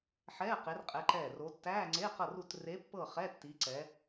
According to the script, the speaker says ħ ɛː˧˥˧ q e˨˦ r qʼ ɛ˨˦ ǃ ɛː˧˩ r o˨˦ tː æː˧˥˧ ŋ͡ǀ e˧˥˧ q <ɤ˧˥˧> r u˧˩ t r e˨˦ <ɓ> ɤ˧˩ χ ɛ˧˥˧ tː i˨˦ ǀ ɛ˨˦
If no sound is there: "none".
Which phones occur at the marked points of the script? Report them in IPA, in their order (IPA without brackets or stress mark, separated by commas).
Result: ɤ˧˩, pː